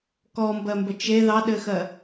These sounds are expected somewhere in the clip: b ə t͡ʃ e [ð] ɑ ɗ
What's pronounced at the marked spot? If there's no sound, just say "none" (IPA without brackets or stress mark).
ð